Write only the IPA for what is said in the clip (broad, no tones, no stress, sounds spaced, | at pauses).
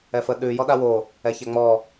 ɛ f ə ɗ ʉ j ɔ ɗ a w o | ɛ ç ɛ ŋ͡m ɔ